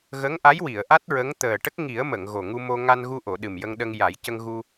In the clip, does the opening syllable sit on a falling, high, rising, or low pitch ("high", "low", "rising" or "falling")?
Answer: rising